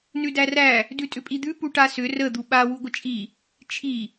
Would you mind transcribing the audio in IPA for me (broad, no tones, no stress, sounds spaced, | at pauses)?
n ʉ d æ r æ | d ʉ tʼ ʏ pʼ i d̪ ʉ p u ʈ a s ʏ r ə d̪ u ɓ a w u ɡʷ ə t͡ʃʼ i | t͡ʃʰ i